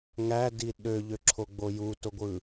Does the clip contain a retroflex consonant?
no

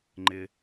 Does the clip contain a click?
yes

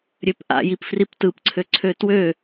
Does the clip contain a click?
yes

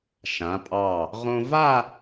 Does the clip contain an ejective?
yes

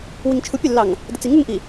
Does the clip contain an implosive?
no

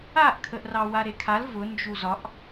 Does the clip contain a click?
no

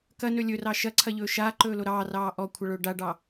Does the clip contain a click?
yes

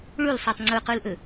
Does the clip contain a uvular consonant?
yes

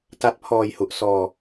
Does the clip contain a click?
no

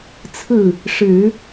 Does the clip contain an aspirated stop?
yes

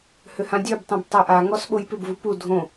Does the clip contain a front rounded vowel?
yes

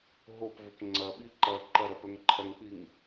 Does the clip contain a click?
yes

